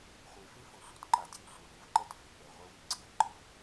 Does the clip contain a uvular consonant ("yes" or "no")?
yes